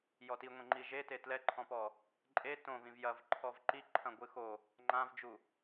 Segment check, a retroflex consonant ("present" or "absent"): absent